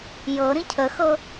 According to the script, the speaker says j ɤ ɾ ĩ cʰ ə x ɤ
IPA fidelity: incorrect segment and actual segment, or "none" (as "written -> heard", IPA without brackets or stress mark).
none